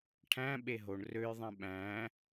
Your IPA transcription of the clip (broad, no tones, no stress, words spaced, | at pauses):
ʈʰæ̃ ɓeɦoɳ røjðˤẽ ɓæ̃